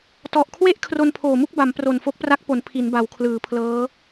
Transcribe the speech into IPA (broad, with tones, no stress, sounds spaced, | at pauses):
t ɔ˨˩ ʔ kʰ w e˥˩ ʔ kʰ r o˧ n pʰ oː˨˩ m u˥˩ k̚ b a˩˦ m p r o˨˩ n f o˦˥ k̚ p r a˦˥ k̚ p o˩˦ n pʰ i˩˦ n b a˩˦ w kʰ l ɯː˩˦ pʰ l ɤː˦˥